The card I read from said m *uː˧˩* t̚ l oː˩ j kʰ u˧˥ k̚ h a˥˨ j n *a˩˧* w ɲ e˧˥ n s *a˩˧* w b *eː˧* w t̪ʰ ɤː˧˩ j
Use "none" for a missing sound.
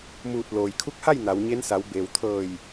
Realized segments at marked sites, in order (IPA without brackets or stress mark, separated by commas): uː˧˩, a˩˧, a˩˧, eː˩